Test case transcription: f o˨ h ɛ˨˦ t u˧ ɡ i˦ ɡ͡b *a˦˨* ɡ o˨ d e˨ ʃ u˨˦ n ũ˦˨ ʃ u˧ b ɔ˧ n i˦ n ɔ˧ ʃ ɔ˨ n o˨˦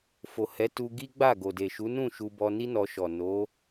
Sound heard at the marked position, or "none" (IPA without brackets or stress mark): a˦˨